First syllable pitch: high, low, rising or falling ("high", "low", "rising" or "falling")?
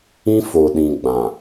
high